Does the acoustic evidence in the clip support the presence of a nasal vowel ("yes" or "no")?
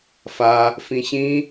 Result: yes